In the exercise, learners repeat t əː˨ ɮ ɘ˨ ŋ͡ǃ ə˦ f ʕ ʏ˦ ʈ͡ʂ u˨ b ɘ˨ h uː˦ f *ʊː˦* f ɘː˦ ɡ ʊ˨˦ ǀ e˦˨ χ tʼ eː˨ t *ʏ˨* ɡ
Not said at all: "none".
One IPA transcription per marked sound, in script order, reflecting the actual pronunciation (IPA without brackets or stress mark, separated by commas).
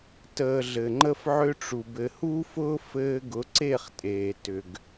ʊː˦, ʏ˨